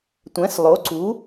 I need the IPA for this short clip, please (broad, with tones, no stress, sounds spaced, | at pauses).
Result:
tʷ ɛ̃˩˥ s lˠ o˩˥ ǀ u˩˥